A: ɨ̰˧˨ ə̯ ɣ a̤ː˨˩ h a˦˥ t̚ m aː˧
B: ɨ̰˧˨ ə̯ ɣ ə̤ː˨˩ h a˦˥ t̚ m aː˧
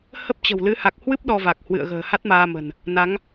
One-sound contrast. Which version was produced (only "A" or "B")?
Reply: B